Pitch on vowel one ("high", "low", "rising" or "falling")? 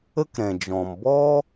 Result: high